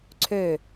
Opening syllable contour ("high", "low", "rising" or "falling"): falling